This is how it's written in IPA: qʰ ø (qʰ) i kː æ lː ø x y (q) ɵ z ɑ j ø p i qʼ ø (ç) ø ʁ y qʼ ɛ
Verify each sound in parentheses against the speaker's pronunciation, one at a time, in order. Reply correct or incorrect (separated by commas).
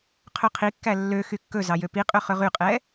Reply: correct, incorrect, incorrect